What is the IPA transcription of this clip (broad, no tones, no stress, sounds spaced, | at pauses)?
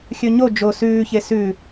xʲ ɵ ɲ o d͡ʒ o s ʉː ç e s ʉ